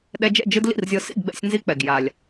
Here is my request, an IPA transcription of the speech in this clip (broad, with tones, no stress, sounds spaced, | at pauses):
ɗ ɛ˧ d͡ʒ ɛ̰˥˨ d͡ʒ ɯ˧ d l ḭ˥˨ r zʲ ɤ˧ s ḭ˥˨ ɡ ɡ͡b ɛ̰˧ sʲ n z i˧ k͡p ɛ˩ ɡ j a˩ lʲ